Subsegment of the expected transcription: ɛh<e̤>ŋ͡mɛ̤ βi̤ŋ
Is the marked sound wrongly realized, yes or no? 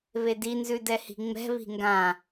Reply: yes